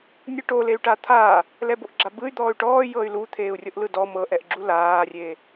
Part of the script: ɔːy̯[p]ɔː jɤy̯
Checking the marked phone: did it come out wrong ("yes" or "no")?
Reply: yes